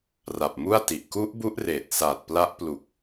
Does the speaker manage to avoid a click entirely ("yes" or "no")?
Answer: yes